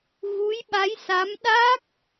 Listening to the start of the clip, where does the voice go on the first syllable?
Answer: rising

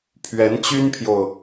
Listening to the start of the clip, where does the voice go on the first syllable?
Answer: rising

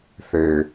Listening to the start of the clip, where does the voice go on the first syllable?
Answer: falling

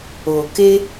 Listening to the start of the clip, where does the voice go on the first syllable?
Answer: low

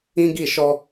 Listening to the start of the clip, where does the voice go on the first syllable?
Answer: high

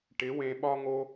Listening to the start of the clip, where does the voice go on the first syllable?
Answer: rising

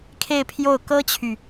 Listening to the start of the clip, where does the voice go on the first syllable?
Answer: falling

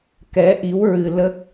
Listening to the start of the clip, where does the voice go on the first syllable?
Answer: rising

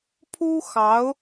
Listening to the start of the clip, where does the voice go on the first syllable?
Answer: high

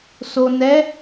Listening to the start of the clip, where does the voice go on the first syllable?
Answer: low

